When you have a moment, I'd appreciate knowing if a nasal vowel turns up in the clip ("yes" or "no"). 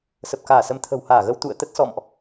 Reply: no